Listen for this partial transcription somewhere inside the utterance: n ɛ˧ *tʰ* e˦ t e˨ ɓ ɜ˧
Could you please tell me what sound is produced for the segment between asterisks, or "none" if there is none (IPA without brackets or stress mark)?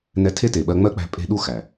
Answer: tʰ